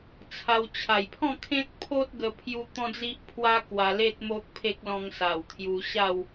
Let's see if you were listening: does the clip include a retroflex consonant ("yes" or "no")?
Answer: no